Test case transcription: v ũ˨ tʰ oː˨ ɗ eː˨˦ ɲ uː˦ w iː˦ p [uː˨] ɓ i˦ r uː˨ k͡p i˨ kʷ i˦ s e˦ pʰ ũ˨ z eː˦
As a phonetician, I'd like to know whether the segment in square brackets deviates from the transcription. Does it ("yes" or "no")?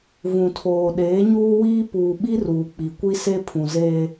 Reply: no